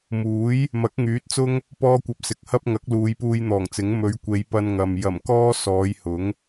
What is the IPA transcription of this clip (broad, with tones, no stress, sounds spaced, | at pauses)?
m uː˨˥ j | m ɐ˨˥ k̚ ŋ yː˨˥ t̚ t͡s ʊ˥ ŋ | p ɔː˧ kʷ ɐ˨ p̚ s ɪ˨ k̚ h ɐ˥ p̚ ŋ ɐ˨˥ k̚ l uː˨˧ j p uː˧ j n̪ ɔː˨˩ ŋ t͡s ɪ˨˥ ŋ m ɵ˨˧ ɥ kʷ e˨˧ j p ɐ˧ n ŋ ɐ˨ m j ɐ˨˩ m k ɔː˥ s ɔː˨˧ j h ʊ˨˥ ŋ